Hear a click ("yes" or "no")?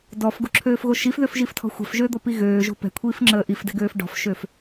yes